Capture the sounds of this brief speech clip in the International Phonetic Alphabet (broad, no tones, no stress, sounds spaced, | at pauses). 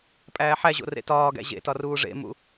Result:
pʼ æː ħ æ ʑ o̰ r ḛ t ɒː ɡ æ̰ ʑ ḛ t ɒ r uː ʐ ḛ m ṵ